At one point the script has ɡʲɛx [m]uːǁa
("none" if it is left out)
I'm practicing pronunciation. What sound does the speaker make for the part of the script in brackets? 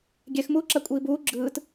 m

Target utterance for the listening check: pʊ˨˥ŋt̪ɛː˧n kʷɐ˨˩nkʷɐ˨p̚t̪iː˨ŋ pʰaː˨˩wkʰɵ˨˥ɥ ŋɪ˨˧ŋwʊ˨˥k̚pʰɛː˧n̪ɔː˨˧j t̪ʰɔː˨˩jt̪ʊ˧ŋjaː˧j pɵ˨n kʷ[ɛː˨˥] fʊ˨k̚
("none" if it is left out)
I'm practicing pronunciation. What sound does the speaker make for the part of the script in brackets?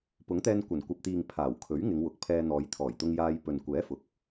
ɛː˨˥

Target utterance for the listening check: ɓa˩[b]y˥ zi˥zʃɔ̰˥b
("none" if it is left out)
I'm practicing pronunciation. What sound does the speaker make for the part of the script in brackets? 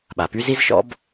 p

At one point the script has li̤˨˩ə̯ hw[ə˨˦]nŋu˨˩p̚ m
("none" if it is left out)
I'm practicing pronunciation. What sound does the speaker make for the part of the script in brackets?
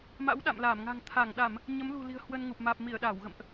ə˧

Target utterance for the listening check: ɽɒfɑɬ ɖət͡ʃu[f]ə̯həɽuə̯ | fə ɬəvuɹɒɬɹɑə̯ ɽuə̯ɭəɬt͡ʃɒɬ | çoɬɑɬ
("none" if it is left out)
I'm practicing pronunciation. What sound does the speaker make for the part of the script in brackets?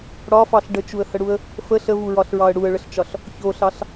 none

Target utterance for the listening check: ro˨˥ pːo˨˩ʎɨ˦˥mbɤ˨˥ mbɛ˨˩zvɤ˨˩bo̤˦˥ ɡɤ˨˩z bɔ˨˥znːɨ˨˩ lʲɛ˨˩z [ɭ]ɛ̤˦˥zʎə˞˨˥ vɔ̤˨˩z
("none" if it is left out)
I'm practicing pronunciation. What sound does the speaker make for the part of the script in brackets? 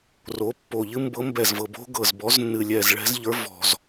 ɭ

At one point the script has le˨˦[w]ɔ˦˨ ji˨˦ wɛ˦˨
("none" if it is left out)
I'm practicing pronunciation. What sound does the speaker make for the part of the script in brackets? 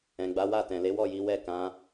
w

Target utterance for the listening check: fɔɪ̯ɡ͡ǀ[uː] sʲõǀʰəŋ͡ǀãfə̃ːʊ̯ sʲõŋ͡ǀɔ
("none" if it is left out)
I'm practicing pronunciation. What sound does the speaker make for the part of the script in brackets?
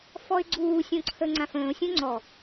uː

